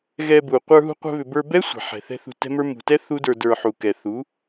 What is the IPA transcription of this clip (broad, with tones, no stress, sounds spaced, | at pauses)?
ɣ ɛ˧ b u˨ qʷ ə˞˧ ɦ ṳ˧ qʷ ɛ̤˧ β ʏ˨ b ə˞˧ b ɛ˦ sʷ a̤˨ ħ ɛ̤˨ θ ɛ̤˦ θ ṳ˧ t ɛ̤˦ m ə˞˦ m ṳ˨ t ɛ˦ θ u˦ d ə˞˧ d ə˞˧ ħ u˨ k ɛ˨ θ u˨˦